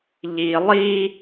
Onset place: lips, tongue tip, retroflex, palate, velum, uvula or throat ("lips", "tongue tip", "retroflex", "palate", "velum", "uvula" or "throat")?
palate